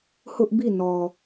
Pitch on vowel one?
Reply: high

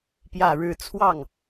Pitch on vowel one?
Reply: low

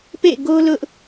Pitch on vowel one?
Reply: falling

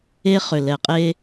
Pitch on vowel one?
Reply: high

